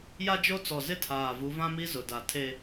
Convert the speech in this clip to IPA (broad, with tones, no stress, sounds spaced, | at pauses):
j a˦ d͡ʒ o˦ t͡s ɔ˨ z ɪ˦ tʰ aː˨ v u˨˦ v ã˦ m i˦ z ʊ˨ d a˨ tʰ e˦